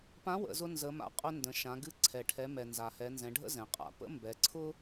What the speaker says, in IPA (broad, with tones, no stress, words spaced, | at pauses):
pã˧˥wə̰˩˧zʊ˧ nzə˩˧ma̰˩˧qʼʊ˧ ndə̃˩˧ʃã˩˧ɡɨ˧ ǀʰɛ˩ʈʰɛ˩˧mɛ˩ nza˩hɛ˩˧nzɛ̃˩˧ɖʱə̰˥ zɛ̃˩qʼa̰˩˧ pə̰˥mbɛ˩˧ǀʰʊ˥